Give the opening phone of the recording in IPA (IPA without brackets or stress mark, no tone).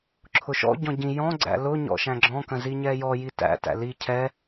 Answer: ǁʰ